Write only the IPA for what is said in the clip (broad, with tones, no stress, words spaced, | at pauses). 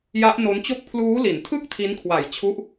ja˦˥ʔno˦˥nt͡ɕo˥˩k̚ pʰluː˦˥li˩˦ntʰɯ˥˩k̚ tʰi˦˥nkʰwa˨˩jt͡ɕʰu˦˥ʔ